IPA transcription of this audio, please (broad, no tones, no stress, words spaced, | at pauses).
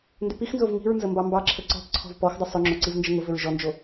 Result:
ndʏpixnzov ŋi̤ɹnzə mbɑmbɑǁʰə ǀɔ̤p ǀʰɔ̤vpɔxdˤə sˤʏŋ͡ǁo ǀivnd͡ʒəŋʊvʏɹ ʒɔnd͡ʒo